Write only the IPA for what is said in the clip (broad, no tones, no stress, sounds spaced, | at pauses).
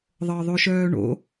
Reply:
ðˤ əː ðˤ ø ʃ œː ɳ o̰